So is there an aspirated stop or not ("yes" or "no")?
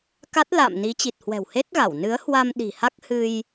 no